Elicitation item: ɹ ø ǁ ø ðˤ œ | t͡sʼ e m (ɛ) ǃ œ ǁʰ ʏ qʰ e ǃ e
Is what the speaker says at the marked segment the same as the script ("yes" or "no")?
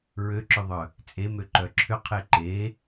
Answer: no